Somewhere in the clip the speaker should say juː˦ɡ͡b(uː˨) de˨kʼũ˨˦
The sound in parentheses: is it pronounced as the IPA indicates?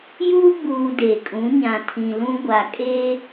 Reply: yes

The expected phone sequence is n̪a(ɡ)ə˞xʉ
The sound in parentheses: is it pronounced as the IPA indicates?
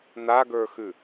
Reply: yes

